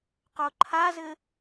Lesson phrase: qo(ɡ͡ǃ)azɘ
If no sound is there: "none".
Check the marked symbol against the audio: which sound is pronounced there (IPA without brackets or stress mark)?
ǃʰ